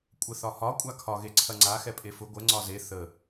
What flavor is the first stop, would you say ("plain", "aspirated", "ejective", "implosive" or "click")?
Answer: ejective